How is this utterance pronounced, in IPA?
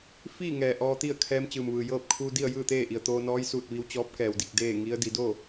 f iː˥˨ ŋ ɛː˩ ʔ ɔː˧ t̪ i˥˨ ə̯ kʰ ɛː˧˥ m t͡ɕ ɯː˩ m ʋ ɯː˩ j ɤː˥˨ p̚ kʰ u˧ d i˥˨ ə̯ j ɯː˥˨ t̪ eː˥˨ ʔ i˩ ə̯ t̪ oː˧ n ɔː˧˥ j s uː˧˩ t̚ ʋ i˧ w t͡ɕ ɔː˧˥ p̚ k ɛː˩ w d i˧˩ k̚ d eː˥˨ ŋ i˧˥ ə̯ d i˩˧ d oː˥˨

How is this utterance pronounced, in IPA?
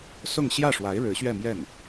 s ʊ˥˧ ŋ ɕ j ä˥˩ ʂ w a˧˥ ɪ̯ ɻ ɻ̩˧˥ ɕ ɥ ɛ˥˧ m j ɛ˥˩ n

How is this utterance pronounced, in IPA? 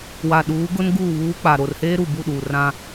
w a˨ ɗ uː˨˦ ɡ ʊ˦ n ɡ uː˦˨ β uː˦ k͡p a˨ ɾ o˨ r h eː˦ ɾ u˨ b u˦˨ ɗ uː˨ r ã˦

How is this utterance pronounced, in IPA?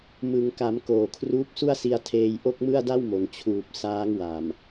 m ɯ˩˦ ŋ k a˩˦ m k oː˨˩ kʰ r uː˦˥ p̚ s u˥˩ a̯ s i˧ a̯ tʰ eː˧ j ʔ o˥˩ k̚ m ɯ˥˩ a̯ d a˥˩ w m o˩˦ n t͡ɕʰ uː˨˩ p̚ s aː˦˥ ŋ w a˨˩ m

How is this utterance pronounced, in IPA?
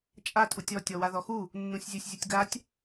t͡ʃʼ a tʼ u tʲ ɔ tʲ ɔ w a ð ɔ x u | nː ũ sʲ zʲ u sʲ zʲ u tʲ ɡ a tʲ

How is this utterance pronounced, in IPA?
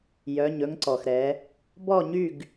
j œ˧˥˧ ɲ ɵ˥ ŋ ǀ ɔ˧ x ɾ ɛ˧˥ | b ɔ˥˧ ɲ y˥˧ ɡ

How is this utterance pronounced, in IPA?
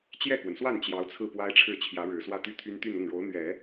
t͡ɕ j ɛ˥˩ k w ə˩ n s w a˥˩ n t͡ɕ j ɑ˧˥ ʊ̯ t͡sʰ ɹ̩˥˩ p w a˥ ɪ̯ ʈ͡ʂʰ ɻ̩˥˩ t͡ɕʰ j ä˧˥ ɻ ɻ̩˨˩ s w ä˥˧ t̪ y˥˩ t̪ʰ y˥ n t̪ y˥˧ n ʊ˥˩ ŋ ɻ o˧˥ ʊ̯ n̪ ɥ ɛ˨˩˦

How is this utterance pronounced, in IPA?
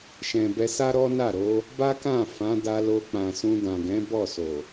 ʃ ɛ̃˨ b ɛ˧ s a˦ ɾ ɔ˦ n a˦˨ ɾ o˨˦ | b a˦ k ã˦˨ f ã˨˦ d a˧ l o˧ k͡p ã˨ s ũ˧ d ã˨ ɡ ɛ̃˨˦ b ɔ˦˨ s o˨

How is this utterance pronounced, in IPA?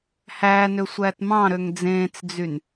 h æː n ø sʷ æː t m ɑ̃ ɾ ø ŋ d͡z ẽː t͡s d͡z y n

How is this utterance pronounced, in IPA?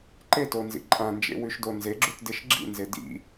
ǃ e t o n z ḭ ǃʼ ã n d͡ʒ ḛ w ʉ ʃ d o n z e ɡ͡ǁ u t d e ʃ ɡ͡ǁ ḭ n z e d ḭ

